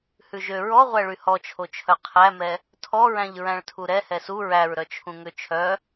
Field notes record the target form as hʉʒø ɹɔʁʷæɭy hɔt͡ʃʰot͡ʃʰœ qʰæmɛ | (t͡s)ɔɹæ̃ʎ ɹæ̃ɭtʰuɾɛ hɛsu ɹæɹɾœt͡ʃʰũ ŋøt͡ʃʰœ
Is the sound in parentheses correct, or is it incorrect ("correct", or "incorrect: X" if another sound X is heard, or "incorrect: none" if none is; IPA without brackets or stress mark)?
incorrect: tʰ